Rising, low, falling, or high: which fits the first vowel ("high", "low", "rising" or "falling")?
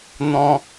high